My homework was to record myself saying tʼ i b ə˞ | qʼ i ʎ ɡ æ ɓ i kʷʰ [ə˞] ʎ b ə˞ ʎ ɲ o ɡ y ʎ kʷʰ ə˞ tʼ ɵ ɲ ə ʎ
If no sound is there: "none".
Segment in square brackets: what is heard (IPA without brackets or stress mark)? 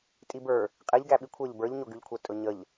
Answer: ə˞